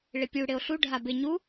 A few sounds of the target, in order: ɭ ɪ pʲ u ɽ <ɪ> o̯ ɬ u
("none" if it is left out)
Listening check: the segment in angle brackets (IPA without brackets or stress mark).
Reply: ɪ